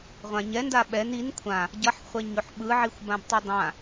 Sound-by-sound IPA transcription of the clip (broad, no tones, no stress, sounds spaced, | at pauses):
ʁʷ ã ɲ ɛ n d a ɓ ɛ n i n kʷʰ ã | ɟ ʌ ħ χʷ ɛ ɲ o ħ ɓ ɯ ʕ i xʷ b ã b tˤ i dˤ ã